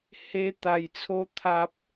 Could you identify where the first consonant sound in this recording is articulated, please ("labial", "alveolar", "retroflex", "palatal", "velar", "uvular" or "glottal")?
glottal